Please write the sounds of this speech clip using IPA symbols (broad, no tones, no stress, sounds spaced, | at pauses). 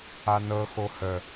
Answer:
a n ɤ x o h ə